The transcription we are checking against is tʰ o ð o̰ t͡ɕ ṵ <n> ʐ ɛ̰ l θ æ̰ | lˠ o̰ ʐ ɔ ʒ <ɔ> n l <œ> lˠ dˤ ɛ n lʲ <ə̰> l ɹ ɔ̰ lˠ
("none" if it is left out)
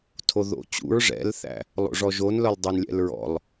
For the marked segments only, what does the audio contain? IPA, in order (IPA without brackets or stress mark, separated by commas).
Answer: ɹ, o, œ, ɛ̰